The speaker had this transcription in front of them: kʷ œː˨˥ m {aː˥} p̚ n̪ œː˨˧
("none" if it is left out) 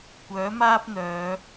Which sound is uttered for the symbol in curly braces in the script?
aː˥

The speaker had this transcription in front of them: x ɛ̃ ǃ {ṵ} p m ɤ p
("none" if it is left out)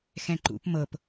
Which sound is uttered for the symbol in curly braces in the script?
ṵ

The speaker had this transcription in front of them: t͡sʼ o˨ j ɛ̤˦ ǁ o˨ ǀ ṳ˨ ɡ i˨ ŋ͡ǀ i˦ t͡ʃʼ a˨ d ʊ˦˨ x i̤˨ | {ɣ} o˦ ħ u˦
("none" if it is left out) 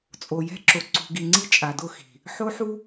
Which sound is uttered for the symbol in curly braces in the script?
ħ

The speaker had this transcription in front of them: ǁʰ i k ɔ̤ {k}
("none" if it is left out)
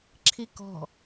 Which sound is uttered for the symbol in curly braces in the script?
none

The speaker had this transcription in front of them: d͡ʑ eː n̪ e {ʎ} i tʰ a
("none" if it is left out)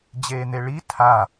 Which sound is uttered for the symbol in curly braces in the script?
ɭ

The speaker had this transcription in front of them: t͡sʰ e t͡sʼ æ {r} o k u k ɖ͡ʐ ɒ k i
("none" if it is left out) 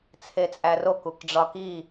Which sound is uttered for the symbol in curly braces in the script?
r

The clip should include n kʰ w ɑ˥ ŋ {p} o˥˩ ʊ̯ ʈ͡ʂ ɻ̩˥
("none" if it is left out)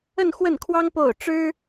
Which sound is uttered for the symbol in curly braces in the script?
p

